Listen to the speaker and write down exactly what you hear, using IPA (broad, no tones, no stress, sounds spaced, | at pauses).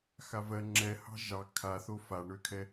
x a v ɜ ŋ͡ǁ ɛ h ɑ̤ ʒ ɑ kʰ a θ o f a ɳ ø kʰ ɛ